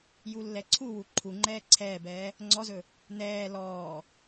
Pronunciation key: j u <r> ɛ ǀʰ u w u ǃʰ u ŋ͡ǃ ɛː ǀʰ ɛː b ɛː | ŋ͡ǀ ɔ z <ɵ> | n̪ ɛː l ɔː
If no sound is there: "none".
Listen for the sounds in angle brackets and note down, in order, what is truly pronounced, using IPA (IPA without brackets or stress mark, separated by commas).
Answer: lː, ɵ